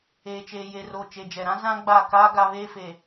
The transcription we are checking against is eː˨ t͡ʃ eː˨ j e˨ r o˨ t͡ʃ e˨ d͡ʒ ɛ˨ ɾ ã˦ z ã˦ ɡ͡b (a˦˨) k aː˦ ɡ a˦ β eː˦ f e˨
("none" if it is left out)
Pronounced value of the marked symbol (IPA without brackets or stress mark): a˦˨